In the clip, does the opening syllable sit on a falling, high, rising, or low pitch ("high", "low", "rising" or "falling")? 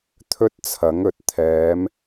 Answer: high